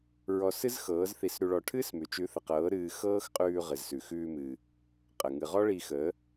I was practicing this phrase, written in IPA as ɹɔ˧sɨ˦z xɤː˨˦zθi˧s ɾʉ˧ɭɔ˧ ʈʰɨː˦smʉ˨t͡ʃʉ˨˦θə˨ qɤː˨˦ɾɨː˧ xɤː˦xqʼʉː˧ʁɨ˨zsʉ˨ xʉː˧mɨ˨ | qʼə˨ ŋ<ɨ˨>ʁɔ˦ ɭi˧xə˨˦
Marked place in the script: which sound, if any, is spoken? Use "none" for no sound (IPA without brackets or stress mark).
ɨ˨